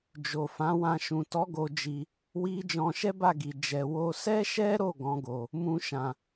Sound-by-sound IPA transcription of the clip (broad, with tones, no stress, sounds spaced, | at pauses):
d͡ʒ o˨ f ã˨˦ w ã˧ ʃ ũ˨ t ɔ˨˦ ɡ o˧ d͡ʒ i˧ | w i˦ d͡ʒ ɔ̃˧ ʃ ɛ˦ b a˦˨ ɡ i˨ d͡ʒ ɛ˨ w o˧ s ɛ˦ ʃ ɛ˦ ɾ o˦˨ ɡ ɔ̃˨˦ ɡ o˧ | m ũ˦ ʃ ã˧